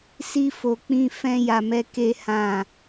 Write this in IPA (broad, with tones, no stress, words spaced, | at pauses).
si˧fo˨k͡pĩ˧ fɛ̃˦ja˧mɛ˦ ke˦hã˦˨